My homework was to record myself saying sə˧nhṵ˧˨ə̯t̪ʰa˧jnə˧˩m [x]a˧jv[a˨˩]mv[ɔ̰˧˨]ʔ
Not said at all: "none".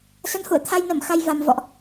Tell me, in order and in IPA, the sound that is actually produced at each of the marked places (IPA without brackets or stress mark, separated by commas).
x, a˨˩, ɔ̰˧˨